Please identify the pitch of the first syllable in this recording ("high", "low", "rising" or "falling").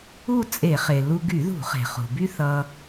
falling